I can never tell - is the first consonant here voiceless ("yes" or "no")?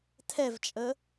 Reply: yes